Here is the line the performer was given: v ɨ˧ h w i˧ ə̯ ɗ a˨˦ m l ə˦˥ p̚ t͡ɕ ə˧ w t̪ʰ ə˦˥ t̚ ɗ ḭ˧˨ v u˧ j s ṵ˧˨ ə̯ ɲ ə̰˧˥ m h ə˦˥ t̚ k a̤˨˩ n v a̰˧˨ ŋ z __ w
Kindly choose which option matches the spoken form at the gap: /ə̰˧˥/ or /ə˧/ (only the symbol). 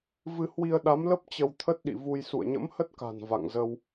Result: ə˧